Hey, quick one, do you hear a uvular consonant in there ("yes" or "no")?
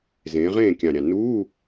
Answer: yes